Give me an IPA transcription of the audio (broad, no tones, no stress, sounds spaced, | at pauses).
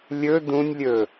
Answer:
lʲ ɵ d ũ nʲ lʲ ɵ